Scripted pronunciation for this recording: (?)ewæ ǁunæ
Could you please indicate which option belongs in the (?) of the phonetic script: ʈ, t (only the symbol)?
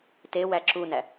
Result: t